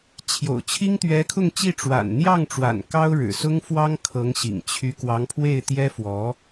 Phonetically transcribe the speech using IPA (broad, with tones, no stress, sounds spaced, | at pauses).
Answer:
t͡ɕʰ j o̰˨˩ ʊ̯ t͡ɕʰ i˥ ŋ t̪ ɥ ɛ˧˥ kʰ ʊ˥˧ ŋ t͡ɕ i˥˩ ʈ͡ʂ w a̰˨˩ n n̪ j ɑ˥˩ ŋ ʈ͡ʂ w a̰˨˩ n k ɑ˥ ʊ̯ ɻ ɻ̩˨˩ s ʊ˥ ŋ f w ɑ˥ ŋ kʰ ɤ˧˥ ŋ ɕ ḭ˨˩ ŋ t͡ɕʰ y˧˥ k w ɑ˧˥ ŋ pʰ w e˥˩ ɪ̯ t̪ j ɛ˥ f w ɔ˧˥